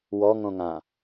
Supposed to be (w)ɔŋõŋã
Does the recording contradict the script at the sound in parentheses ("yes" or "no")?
no